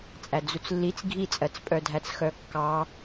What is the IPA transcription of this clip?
t͡sʼ æ d͡z u t͡s lː i t͡s ɡʱ i t͡sʼ ɜ t͡s pʼ œ dʱ æ t͡s x œ kː ɑ

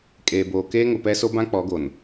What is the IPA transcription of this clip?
kʼ eː˨ b oː˨ k eː˦ ŋ ʊ˨ p ɛ˦ s o˦ b ã˦ k͡p ɔ˨˦ ɡ o˨ n

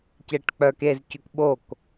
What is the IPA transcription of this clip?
c e ʈ k͡p œ k e z c ʉ k ɓ o k

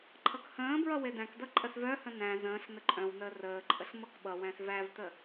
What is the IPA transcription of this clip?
ǃʰ ʌ k h ə̃ː b ɹ ʌ w e d æ̃ k d ʌ ǃʼ ə s v œ h ə̃ n æ̃ z ə̃ː ɬ n ə ǃʼ œ̃ w n əː r əː ǃʼ ə ɬ m ʌ k ɓ ʌ w æ̃ s v æ v t ə

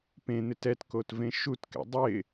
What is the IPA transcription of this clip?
p ẽ n̪ ɪ t ɛ t k o t v ẽ ʃ u t k ɛ̰ dˤ ɪ

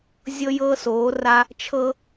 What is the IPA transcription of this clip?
zʲ ɤ˦ j ɤː˦ s oː˨˦ r a˦ | t͡ʃʰ ɤ˦

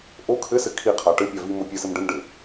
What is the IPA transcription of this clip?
ʔ o kʰ ɘ s ɘ kʰ i qʰ a ʈ ɘ pʲ a v i m o pʲ ɘ s ɘ m ɖ ɘ m ɖ ɘ

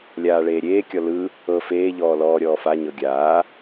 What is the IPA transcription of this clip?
lʲ aː ɭ eː ɾʲ eː kʲ ɔ l ɯ | ɤ f eː ʎ ɔː l ɔː ɾʲ ɔː f a ɲ ɤ ɡʲ aː

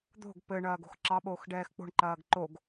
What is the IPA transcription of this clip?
d̪ o̤ ɡ p ɘ ɳ ɐː ɡ o̤ x ǁ ɑ ɓ oː x ɖ ɛː x k͡p o̤ ɳ ǃ ɐː ɡ ǃ o ɡ

